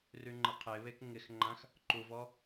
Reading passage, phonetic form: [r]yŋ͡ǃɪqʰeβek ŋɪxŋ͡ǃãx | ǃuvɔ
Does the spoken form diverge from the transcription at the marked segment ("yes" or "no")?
no